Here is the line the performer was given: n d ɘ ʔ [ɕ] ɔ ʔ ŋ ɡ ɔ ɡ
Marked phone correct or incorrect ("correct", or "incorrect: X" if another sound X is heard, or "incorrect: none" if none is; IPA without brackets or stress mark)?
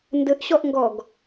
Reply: correct